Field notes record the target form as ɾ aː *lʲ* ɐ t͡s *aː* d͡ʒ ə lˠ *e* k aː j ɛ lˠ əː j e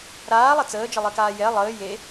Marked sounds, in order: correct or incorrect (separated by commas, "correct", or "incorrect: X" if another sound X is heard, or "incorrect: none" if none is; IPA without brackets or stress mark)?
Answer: incorrect: lˠ, incorrect: əː, correct